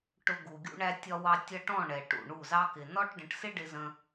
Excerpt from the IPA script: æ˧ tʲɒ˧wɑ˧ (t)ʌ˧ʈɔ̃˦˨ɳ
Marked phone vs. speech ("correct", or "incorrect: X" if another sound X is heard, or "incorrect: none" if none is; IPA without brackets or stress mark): incorrect: tʲ